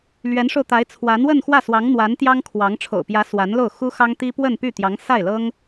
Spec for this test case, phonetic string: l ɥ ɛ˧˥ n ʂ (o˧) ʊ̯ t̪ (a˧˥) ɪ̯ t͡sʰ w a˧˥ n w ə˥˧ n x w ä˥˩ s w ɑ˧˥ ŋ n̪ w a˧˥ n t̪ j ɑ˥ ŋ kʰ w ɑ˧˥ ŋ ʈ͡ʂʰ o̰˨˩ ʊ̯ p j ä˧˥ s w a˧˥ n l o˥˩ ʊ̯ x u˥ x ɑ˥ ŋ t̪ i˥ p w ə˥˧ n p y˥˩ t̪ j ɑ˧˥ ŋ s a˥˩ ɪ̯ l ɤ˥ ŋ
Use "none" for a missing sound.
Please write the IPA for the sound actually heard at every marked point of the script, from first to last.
o˧, a˧˥

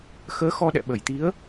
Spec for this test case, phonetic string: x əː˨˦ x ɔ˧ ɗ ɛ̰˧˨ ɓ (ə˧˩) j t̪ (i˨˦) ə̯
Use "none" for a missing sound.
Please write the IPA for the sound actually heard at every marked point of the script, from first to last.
ə˧˩, i˨˦

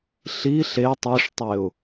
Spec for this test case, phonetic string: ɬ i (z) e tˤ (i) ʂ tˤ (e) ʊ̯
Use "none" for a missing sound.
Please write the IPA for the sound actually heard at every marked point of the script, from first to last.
ɬ, i, e

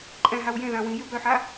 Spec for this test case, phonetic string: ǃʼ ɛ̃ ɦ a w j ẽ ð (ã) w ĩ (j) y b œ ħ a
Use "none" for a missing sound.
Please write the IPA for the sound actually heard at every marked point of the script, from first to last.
ã, j

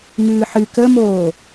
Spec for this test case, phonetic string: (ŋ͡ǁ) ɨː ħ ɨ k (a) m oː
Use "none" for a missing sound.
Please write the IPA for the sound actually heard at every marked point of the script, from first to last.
ŋ, ə

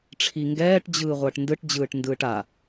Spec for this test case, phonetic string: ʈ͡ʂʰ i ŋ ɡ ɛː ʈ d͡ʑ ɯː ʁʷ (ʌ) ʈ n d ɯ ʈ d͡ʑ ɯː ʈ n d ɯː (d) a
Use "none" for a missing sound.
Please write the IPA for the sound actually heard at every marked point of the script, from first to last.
ʌː, ʈ

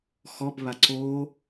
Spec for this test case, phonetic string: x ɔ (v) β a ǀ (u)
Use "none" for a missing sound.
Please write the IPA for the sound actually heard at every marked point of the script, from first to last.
b, o

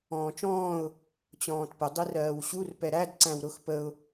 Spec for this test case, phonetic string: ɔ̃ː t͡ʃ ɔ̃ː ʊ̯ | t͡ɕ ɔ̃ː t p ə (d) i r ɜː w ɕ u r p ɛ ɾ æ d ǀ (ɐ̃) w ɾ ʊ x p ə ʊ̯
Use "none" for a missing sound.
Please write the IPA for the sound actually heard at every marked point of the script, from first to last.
dˤ, æ̃

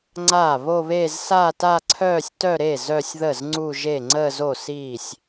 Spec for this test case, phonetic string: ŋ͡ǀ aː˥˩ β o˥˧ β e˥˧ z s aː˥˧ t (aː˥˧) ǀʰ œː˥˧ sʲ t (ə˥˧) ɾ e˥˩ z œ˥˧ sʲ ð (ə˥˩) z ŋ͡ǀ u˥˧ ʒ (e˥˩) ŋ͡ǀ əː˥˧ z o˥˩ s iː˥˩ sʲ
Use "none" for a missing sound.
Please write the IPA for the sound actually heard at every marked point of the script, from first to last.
a˥˧, œ˥˧, ə˥˩, e˥˩

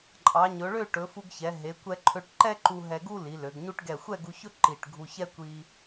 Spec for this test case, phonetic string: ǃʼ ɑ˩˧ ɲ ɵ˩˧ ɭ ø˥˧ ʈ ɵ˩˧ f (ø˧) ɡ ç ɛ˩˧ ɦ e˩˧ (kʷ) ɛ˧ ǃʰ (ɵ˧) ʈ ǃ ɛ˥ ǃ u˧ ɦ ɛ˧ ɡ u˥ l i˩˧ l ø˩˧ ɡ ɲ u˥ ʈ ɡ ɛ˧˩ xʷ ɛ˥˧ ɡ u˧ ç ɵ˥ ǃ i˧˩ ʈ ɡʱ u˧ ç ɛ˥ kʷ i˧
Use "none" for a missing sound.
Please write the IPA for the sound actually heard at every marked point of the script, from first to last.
u˧, kʷ, ø˧

